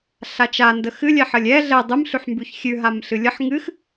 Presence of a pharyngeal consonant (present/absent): present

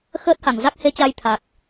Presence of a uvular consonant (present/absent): absent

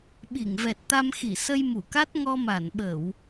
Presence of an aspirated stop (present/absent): absent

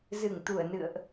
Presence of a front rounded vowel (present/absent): absent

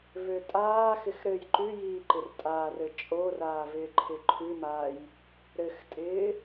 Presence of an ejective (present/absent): present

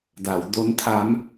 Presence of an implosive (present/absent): absent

